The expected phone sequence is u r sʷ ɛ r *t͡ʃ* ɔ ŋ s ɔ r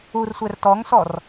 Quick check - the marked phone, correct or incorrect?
incorrect